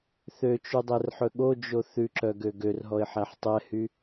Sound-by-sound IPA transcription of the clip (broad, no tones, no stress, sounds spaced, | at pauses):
θ ø t͡ʃ y dˤ ɛ r ħ ɵ ɠ o d͡ʒ o θ ʉ ǁ œ ɡ ø ɡ ø r ɦ ɔ ɪ̯ ħ æ ħ tˤ ɛ h y